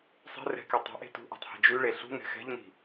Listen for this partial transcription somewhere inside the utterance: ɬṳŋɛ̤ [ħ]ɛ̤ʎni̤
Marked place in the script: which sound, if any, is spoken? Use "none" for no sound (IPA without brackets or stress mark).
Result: x